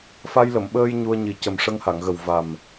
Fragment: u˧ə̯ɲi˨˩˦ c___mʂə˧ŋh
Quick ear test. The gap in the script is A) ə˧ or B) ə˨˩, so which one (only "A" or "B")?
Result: B